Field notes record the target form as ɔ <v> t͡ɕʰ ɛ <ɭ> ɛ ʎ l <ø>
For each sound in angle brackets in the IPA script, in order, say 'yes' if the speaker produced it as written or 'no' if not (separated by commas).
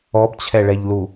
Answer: no, yes, no